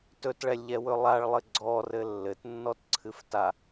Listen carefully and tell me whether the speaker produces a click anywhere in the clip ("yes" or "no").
yes